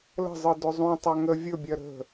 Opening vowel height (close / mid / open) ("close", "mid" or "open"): mid